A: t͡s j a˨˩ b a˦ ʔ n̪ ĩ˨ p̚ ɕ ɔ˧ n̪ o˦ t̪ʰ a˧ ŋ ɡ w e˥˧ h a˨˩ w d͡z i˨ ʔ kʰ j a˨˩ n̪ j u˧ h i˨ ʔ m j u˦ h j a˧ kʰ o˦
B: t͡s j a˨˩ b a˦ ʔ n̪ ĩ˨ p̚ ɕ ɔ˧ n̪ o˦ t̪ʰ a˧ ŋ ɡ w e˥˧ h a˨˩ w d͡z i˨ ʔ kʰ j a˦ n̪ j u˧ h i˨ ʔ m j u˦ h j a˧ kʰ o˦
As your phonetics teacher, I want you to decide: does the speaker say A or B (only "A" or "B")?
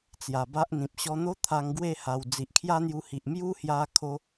B